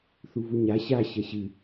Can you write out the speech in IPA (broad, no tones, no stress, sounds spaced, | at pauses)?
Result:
θ u v u ɲ a ɕ a ɕ ɐ ɕ ɨ